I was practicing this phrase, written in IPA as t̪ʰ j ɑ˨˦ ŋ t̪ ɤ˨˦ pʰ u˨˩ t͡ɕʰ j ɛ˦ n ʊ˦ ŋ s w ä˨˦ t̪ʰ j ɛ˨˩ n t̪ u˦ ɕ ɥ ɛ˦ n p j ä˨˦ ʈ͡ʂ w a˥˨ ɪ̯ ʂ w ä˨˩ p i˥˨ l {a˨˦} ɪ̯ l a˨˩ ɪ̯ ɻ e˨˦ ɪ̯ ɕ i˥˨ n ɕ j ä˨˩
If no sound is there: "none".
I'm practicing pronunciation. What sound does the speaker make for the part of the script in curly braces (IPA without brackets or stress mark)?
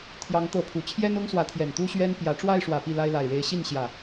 a˦